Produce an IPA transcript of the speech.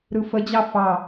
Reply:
ɾ ɯ f ə d͡ʑ ɑ f ɑ

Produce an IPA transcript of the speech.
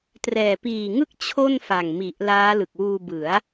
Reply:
t r ɛː˨˩ p iː˨˩ ŋ ɯ˥˩ k̚ t͡ɕʰ o˥˩ n f a˨˩ ŋ m i˨˩ ʔ l aː˦˥ l ɯ˨˩ k̚ w uː˧ b ɯ˩˦ a̯

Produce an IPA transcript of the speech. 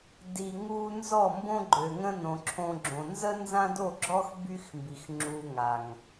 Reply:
d i˨ ŋ u˧ n z ɔ˦˨ m b õ˦ ɡ͡ǃ ø˨ ŋ ə̃˦ n õ˨ ǁʰ õ˧ ɡ͡ǁ õ˨ n z ə˦ n z ã˦ d o˦˨ ɡ͡ǁ ɔ˦ x b y˦ x m b i˨ x ŋ͡ǁ u˨ ŋ a˨ ŋ

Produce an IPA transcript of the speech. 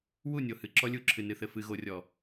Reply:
w u˦˨ nʲ o˨ h ɨ˨ ǁ ɔ˦ lʲ u˦˨ ǁʰ ɨ˨ n ɨ˨ θ ɘ˨ f ɨ˨ ɣ o˨ rʲ ɔ˨

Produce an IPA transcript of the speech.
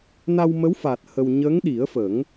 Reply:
n a˧ w m ə˧˥ w f a˨˩ t̚ h ə˧ w ɲ ə˧˥ ŋ ɗ i˨˩˦ ə̯ f ə˨˩˦ ŋ

